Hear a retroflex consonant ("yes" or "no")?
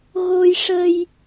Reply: yes